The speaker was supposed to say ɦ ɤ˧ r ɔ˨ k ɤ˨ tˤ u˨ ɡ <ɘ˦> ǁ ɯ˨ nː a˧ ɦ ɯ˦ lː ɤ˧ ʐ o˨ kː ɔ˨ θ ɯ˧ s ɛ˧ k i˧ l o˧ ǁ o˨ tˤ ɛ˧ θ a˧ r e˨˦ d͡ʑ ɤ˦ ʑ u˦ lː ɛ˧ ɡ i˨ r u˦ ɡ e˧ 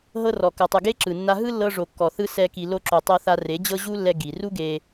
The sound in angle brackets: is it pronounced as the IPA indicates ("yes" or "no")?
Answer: no